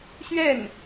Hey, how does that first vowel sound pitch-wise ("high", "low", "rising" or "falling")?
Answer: falling